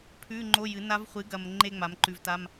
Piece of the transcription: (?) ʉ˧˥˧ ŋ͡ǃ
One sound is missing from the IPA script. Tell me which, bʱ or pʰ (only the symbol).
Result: pʰ